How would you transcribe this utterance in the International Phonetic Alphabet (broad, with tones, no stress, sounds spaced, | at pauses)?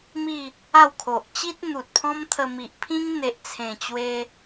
m i˥˧ | a˥˧ w kʰ o˨ ʔ t͡ɕ i˦ t̚ n̪ u˨ t̚ pʰ ɔ̃˦ m t̪ʰ ə˧ m i˨ ʔ pʰ ĩ˦ ŋ n̪ e˨ ʔ t͡sʰ ẽ˨˩ t͡ɕ w e˦